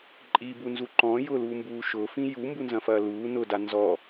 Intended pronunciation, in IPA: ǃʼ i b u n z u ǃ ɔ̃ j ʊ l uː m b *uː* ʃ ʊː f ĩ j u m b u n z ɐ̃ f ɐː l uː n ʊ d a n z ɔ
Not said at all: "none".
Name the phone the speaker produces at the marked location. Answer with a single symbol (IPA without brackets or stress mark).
uː